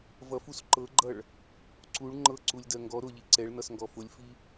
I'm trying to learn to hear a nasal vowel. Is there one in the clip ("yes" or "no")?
no